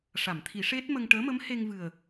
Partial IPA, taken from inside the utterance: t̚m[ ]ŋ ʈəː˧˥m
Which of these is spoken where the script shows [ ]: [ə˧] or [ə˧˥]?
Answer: ə˧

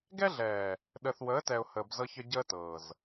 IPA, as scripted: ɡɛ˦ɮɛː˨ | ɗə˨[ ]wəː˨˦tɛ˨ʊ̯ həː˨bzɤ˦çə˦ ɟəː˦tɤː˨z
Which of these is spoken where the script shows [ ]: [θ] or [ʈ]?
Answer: θ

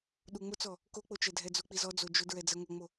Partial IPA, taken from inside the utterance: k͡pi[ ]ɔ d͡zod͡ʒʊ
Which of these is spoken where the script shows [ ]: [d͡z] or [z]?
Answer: z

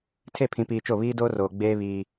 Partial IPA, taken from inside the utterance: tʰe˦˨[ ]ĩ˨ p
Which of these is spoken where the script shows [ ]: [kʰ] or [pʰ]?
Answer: pʰ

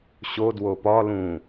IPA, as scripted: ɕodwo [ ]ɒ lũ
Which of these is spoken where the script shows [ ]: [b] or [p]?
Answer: p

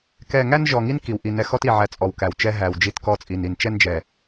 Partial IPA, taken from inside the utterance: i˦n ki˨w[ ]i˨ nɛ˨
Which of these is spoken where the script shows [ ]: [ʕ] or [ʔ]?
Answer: ʔ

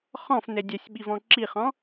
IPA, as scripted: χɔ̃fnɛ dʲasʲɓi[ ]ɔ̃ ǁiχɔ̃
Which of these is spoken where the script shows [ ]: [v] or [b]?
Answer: v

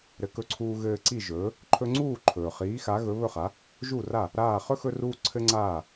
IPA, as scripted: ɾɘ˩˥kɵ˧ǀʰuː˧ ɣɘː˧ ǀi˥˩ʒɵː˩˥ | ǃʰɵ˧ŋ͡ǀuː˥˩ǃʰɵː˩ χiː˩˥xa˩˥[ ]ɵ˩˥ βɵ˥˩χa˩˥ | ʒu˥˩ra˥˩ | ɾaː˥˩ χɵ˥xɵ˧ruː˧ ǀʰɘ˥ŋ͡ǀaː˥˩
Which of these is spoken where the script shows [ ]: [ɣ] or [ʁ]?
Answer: ɣ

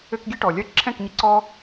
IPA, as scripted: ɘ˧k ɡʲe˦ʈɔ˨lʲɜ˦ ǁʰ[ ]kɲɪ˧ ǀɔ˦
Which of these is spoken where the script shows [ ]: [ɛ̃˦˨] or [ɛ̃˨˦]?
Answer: ɛ̃˦˨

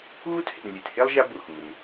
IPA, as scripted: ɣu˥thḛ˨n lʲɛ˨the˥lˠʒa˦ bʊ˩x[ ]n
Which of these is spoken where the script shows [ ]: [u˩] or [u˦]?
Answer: u˩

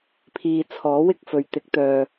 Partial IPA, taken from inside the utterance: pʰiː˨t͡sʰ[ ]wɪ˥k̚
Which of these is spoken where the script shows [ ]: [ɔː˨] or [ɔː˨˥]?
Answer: ɔː˨˥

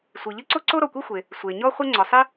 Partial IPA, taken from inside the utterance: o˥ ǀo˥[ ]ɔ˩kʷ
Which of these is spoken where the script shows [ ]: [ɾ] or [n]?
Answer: ɾ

